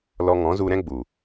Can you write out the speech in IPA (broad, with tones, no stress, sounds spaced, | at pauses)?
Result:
l ɔ˧ ŋ ɔ̃˨˦ z u˧ ɾ ɛ̃˦ ɡ͡b u˨